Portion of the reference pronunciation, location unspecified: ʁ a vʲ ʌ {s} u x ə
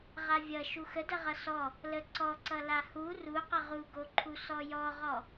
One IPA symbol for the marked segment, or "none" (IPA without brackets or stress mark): ʃ